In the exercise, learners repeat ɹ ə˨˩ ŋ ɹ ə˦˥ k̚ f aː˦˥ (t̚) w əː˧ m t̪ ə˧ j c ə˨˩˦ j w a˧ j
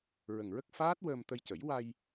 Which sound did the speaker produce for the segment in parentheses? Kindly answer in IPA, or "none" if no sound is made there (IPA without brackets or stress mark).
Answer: t̚